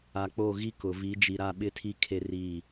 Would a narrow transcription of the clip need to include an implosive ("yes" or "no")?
yes